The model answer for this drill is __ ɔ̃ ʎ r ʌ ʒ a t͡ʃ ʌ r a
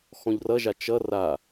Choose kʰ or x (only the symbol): x